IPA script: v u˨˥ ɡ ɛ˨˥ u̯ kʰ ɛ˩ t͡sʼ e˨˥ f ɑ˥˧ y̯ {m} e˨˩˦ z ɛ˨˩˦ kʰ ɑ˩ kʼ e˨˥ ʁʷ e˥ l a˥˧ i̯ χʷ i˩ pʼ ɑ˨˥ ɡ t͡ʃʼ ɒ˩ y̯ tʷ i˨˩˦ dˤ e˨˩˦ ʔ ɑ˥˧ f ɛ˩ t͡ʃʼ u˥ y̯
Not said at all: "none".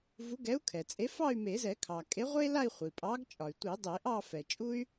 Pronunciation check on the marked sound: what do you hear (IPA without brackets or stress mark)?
m